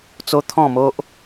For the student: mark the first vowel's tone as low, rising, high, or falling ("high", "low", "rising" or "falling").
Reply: high